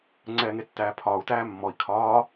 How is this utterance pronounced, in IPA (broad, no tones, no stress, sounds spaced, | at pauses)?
ŋ͡ǀ ɛː ŋ e tː æː pʰ ɒː u̯ t æː mː ɔ i̯ kʰ ɒː